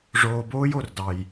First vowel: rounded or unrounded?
rounded